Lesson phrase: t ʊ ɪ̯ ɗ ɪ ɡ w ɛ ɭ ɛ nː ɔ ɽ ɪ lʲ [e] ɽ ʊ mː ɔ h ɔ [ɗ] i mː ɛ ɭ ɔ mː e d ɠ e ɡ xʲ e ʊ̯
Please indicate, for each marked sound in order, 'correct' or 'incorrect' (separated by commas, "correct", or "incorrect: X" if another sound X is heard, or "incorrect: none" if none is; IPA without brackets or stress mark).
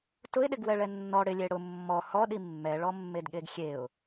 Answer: correct, correct